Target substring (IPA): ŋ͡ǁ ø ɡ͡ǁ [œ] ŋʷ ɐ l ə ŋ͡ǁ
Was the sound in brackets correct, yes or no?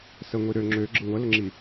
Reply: no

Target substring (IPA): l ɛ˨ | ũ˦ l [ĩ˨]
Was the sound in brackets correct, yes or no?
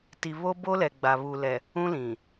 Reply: yes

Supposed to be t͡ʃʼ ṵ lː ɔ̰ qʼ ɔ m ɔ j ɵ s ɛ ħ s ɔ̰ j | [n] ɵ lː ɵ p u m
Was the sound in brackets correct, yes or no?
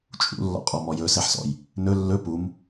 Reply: yes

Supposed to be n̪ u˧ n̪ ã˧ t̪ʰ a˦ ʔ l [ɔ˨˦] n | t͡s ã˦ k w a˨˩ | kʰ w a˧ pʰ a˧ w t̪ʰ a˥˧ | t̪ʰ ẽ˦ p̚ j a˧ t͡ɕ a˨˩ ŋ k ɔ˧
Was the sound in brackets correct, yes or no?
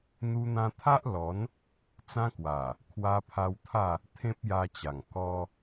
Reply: yes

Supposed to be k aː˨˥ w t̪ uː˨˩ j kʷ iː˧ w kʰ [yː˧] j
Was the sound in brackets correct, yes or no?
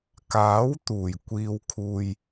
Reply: no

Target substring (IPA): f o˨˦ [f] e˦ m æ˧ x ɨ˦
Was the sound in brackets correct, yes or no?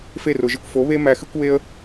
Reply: no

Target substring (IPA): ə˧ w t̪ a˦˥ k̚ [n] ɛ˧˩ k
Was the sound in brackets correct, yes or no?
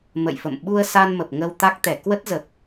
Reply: no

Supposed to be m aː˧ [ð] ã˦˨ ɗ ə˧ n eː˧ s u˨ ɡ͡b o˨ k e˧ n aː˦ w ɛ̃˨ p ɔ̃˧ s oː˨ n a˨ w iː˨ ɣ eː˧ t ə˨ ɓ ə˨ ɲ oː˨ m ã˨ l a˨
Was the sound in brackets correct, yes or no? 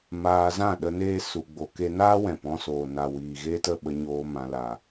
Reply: no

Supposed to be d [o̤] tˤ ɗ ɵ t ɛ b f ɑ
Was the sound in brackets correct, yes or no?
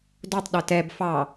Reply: no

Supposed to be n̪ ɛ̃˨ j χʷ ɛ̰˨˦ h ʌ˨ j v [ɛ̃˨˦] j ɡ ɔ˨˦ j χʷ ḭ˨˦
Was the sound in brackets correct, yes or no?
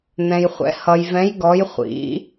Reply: yes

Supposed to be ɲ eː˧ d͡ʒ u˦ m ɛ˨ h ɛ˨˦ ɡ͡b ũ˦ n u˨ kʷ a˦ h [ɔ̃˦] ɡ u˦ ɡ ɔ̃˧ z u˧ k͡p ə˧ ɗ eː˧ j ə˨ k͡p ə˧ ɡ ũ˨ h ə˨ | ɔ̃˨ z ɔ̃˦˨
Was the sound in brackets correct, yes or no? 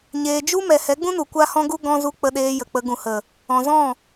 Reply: yes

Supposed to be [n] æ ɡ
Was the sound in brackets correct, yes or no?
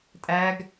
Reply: no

